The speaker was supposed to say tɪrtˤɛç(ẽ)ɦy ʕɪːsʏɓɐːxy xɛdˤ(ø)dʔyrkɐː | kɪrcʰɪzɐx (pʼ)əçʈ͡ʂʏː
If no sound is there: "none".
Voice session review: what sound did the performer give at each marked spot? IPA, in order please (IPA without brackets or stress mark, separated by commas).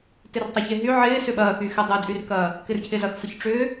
e, ø, f